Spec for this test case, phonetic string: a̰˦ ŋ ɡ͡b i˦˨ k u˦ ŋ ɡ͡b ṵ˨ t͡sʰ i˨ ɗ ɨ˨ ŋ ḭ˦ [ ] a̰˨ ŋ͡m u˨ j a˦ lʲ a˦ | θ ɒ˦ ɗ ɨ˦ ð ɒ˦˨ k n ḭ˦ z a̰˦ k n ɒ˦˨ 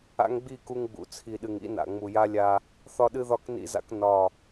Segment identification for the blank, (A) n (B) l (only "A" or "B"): A